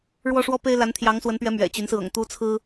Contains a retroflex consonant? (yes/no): yes